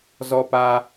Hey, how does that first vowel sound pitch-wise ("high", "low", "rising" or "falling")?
high